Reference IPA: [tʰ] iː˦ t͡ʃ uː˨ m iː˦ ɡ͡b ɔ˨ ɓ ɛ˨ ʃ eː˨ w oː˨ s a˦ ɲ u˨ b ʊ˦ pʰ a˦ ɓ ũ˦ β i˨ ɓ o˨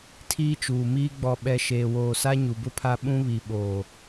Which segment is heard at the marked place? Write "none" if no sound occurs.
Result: tʰ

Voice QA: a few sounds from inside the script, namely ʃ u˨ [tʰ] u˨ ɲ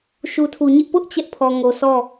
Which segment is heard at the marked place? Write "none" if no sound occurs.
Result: tʰ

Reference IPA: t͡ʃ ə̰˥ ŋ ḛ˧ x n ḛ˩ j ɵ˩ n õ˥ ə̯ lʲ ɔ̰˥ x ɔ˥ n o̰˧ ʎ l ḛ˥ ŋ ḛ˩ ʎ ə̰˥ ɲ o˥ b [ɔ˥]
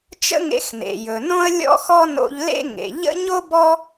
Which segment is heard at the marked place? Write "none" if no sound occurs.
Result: ɔ˥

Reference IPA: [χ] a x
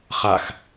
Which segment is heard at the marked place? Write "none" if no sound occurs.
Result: χ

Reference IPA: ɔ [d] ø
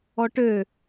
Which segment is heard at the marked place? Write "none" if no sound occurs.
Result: ʈ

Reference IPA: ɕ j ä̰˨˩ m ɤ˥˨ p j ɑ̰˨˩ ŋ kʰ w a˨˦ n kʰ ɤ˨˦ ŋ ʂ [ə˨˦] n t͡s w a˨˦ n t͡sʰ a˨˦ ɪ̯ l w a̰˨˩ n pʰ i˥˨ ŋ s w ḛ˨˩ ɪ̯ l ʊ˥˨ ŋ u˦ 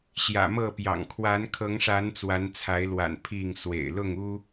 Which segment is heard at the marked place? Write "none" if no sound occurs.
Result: a˨˦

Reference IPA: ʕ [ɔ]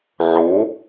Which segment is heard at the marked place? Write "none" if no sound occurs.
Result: o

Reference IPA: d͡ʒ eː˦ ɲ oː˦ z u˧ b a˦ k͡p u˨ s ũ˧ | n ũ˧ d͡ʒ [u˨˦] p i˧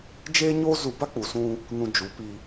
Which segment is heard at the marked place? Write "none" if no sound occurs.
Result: u˨˦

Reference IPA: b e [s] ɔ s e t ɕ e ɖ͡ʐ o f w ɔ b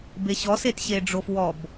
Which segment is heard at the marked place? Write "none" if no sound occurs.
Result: ɕ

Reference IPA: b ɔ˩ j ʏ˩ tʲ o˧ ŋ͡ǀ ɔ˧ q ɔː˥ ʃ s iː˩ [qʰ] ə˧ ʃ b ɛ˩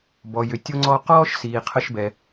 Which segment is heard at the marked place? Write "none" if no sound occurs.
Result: qʰ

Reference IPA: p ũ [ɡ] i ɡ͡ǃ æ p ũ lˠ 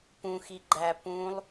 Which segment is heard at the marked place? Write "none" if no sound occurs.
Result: x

